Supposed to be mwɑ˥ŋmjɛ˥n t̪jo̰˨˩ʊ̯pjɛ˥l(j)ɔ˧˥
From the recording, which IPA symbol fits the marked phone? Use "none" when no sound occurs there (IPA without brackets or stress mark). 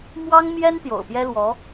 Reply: w